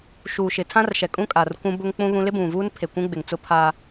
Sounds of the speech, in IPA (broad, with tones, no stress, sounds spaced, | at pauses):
ʃ uː˨ ʃ ɪ˨ tʰ ã˦ r ʃ ɛ˨ kʼ ũ˦ kʼ a˨ r kʷ ũ˦ b ʊ˦ ŋ k͡p ũ˦ β ũ˦ l ɪ˦ b ũ˨ v uː˦ n pʰ e˨ kʷ ũ˦ ɡ͡b ɪ˨ ŋ t͡s ʊ˦ pʰ a˦